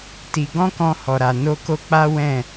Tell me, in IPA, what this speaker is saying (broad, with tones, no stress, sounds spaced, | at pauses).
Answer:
t i˧ ɡ ɔ̃˦ k ɔ̃˧ h ɔ˨ ɾ a˨ n o˧ k o˦ k͡p a˦ w ɛ̃˦˨